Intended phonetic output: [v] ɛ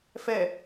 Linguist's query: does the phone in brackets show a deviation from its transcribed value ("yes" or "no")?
yes